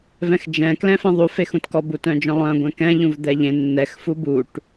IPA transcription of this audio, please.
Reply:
v ɛ̃ x d͡ʒ ɛ̃ k l ɛ̃ f ɛ̃ ðˤ u f e x ũ t k ɔ b u t œ̃ d͡ʒ œ̃ lˠ œ̃ ɡʷ ɛ̃ k ɛ̃ ʎ ũ v d̪ ɛ ʎ ẽ nː ɛ x f u b u ʈ

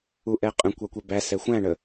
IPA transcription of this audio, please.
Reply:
u ʔ ɛ qʼ ə̃ kʷ ɑ kʷ ɛ b æ s ɛ xʷ æ̃ ɳ ə

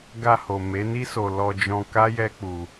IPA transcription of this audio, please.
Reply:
ɡ a˧ h o˨ m e˨˦ n i˦ s o˧ l ɔ˧ d͡ʒ ɔ̃˧ k a˦ j ɛ˦ k͡p u˧

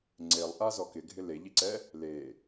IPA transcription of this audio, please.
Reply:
ŋ͡ǀ e lˠ ʔ a z ɔ k ɪ ɡʱ ɪ l e ʎ i ǀ ɛ | l e

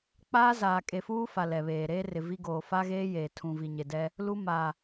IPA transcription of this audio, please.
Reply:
k͡p aː˦ z aː˨ kʼ e˨ f uː˦ f a˨ l ɛ˨ β eː˨ ɾ eː˦ r ɪ˨ v i˦ ɡ oː˨ f a˦ ɣ eː˦ j eː˨ tʰ ũ˨ v i˨ ɲ e˨ d ɛ˦ | l u˦ m a˨

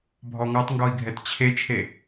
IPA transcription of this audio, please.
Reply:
bʱ ɔ ŋ ɔ tˤ ŋ ɡ ɔ i̯ ɡʱ ɛ t t͡ɕʰ e t͡ʃʰ e

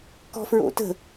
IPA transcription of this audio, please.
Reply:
k ɔ̤ f ɹ o̰ t ə̤

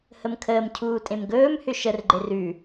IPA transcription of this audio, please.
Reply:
h ə m kʰ əː m cʰ uː tʼ ẽ m ɡ ɵː m h ʏ ʃ ə r ɡ͡ǃ e r ʉ

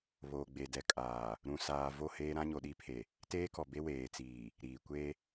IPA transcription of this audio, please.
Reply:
β oː˨ ɡ͡b e˨ d ɛ˨ kʼ aː˨ | ɾ ũ˨ s aː˨ v o˦˨ h eː˦ ɾ ã˦ ɲ o˨ ɗ i˦ pʰ e˨ | t eː˦ k ɔ˨ b e˦ w eː˨ t͡s iː˨ | ɾ iː˨ kʷ e˦

